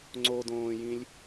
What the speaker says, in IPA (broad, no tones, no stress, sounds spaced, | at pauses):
ŋ͡ǀ o d õː j ĩ lʲ